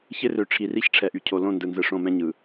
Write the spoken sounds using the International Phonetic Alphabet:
ç ɪ˦ r ø˨ ʈ͡ʂʰ i˨ r i˦ ç ʈ͡ʂʰ ɛ˨ ʔ y˨ cʰ o˨ l õ˦˨ n d ɯ˨ n z ɯ˨ ʂ õ˦˨ m ɛ̃˦ ɲ ɯ˨

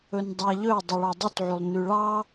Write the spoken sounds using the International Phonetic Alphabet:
ɵ n dˤ æ ʎ ɵ u̯ dˤ y ɭ ɔ dˤ ʉ t ʕ ʉ lˠ n ʉ ɭ ɑ

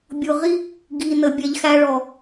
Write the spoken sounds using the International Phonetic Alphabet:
bʲ ʊ˧ ʁ i˦ | ɡ i˨ n ə˨ bʲ ɛ˨ ʎ x æ˧ ɭ ɔ˨

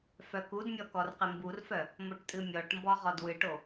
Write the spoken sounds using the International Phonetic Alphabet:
f œ k u d mʲ ɔ k ɔ r q ɪ m b u r f œ | m o ʈ tʼ ɨ mʲ ɔ ʈ m b ɔ ʁ ɔ d w ɨ ʈ o

